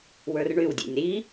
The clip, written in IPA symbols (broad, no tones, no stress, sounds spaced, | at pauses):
w ə˞ r ɳ y w dʲ ḛ nʲ ɾ i